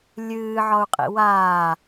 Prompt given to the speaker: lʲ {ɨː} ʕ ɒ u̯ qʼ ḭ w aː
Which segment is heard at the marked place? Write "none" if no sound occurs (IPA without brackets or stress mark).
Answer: ɨː